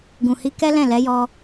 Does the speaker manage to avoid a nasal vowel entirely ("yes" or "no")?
no